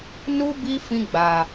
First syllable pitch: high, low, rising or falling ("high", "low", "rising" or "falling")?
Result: high